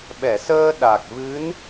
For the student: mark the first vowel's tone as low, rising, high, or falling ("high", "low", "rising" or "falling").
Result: low